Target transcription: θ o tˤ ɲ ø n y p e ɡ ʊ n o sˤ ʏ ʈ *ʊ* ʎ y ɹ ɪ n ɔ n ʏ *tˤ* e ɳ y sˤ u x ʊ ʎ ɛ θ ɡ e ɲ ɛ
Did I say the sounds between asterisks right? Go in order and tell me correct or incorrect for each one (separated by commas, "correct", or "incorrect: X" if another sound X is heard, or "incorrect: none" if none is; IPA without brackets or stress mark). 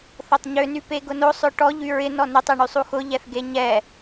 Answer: incorrect: ɔ, correct